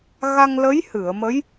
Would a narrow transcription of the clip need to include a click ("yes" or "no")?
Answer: no